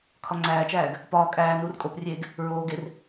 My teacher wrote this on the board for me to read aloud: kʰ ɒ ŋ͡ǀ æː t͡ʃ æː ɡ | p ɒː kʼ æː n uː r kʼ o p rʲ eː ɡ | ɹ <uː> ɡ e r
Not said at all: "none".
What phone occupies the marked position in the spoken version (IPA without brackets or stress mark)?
oː